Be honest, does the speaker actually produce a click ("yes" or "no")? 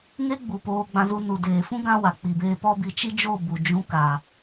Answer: no